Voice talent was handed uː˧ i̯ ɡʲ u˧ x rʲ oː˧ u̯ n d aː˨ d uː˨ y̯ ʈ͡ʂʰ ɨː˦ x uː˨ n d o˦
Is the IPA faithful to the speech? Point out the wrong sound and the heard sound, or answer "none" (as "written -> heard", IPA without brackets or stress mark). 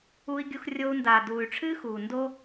none